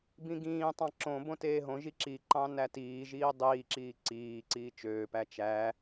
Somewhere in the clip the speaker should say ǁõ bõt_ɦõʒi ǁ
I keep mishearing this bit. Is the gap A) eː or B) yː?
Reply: A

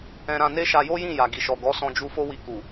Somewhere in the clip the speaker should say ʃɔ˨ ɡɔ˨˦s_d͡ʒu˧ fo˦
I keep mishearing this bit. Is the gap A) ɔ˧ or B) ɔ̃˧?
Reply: B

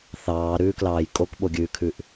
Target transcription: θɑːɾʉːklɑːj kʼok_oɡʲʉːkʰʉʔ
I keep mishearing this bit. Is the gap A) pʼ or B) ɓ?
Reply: B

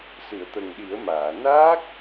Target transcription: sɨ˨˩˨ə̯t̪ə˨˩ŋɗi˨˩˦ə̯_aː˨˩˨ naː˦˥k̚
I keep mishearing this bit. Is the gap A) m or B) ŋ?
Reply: A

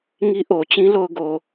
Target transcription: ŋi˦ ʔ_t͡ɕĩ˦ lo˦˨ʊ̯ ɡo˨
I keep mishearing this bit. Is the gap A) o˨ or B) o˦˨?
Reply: A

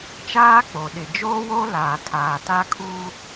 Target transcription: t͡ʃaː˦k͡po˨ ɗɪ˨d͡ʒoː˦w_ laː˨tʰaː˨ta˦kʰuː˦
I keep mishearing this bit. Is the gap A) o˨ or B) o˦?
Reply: B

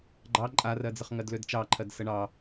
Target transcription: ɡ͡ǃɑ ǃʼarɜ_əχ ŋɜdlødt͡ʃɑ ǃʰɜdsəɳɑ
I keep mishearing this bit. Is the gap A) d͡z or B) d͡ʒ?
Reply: A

